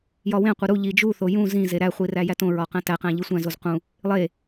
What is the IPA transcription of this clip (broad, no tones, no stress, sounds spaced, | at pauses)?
j ɒ w ẽ qʷ e ɾ u ʎ i d͡ʒ u θ o j ũ z ĩ z e ɾ æ χʷ i r æ j æ t õ ɹ ɒ q æ̃ t æ q æ̃ ʎ i sʷ æ̃ z o z q ũ | lˠ e